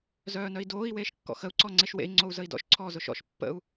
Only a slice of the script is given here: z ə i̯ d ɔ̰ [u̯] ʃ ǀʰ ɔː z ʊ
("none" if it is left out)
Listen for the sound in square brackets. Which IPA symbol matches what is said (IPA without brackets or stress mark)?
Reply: none